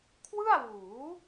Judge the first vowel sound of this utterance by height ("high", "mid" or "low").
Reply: high